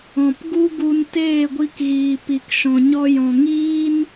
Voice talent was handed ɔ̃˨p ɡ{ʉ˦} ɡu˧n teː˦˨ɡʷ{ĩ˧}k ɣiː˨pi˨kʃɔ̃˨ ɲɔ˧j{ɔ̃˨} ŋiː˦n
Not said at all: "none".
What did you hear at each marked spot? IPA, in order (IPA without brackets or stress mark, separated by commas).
u˦, i˧, ɔ̃˨